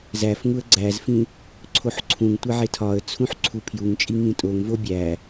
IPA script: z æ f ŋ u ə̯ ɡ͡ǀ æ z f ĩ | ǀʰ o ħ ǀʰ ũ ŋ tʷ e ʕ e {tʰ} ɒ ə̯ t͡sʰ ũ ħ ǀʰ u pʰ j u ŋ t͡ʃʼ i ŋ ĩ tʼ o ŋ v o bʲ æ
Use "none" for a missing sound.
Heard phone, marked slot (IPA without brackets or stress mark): tʰ